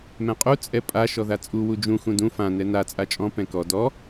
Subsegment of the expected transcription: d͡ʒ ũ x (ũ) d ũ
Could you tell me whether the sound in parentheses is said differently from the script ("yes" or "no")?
no